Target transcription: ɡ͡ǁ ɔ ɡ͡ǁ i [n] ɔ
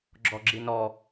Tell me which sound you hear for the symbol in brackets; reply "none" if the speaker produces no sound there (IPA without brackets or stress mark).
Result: n